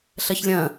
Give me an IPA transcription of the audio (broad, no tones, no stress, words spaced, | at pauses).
ɬɐçlʲɐ̃